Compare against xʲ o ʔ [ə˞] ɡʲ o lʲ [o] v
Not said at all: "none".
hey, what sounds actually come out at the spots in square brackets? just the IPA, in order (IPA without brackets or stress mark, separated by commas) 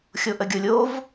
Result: ə, o